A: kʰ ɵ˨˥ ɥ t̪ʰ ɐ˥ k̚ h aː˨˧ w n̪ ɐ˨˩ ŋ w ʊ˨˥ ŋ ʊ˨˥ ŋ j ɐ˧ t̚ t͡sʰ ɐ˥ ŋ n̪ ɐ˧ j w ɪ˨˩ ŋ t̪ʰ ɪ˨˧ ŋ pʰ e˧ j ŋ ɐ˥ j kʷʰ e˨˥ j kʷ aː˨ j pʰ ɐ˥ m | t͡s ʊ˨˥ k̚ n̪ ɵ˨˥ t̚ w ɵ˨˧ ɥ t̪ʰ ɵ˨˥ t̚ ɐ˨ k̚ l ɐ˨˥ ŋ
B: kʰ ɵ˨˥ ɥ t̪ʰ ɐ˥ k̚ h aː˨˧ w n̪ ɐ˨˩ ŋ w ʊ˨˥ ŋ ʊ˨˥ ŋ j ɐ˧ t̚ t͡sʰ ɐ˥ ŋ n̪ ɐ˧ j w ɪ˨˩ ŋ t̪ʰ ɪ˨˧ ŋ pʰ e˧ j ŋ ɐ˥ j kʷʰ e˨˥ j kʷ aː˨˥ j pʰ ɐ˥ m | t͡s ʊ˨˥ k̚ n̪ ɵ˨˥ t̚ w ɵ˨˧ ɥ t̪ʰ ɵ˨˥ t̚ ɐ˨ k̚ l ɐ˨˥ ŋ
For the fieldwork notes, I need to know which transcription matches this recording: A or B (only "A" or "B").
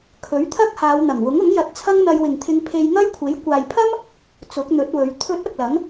A